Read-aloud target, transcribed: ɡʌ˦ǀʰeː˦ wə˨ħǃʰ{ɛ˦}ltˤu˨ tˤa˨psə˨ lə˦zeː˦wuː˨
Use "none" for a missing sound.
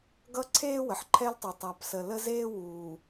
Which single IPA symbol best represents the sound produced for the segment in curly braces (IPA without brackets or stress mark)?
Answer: ɛ˦